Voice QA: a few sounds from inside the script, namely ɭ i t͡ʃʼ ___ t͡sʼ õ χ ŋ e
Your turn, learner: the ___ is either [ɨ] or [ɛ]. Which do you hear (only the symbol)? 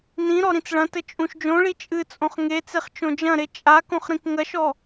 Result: ɨ